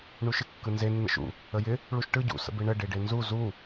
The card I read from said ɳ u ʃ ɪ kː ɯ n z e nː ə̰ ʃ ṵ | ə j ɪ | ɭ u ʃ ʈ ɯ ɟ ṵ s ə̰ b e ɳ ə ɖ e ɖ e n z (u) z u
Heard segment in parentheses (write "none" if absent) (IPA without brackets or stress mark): u